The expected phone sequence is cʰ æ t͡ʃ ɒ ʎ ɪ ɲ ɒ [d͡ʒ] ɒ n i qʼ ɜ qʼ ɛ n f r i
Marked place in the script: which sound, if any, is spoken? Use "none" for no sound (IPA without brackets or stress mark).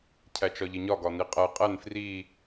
ɡ